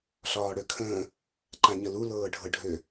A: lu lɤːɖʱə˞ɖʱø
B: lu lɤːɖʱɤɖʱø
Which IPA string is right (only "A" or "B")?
B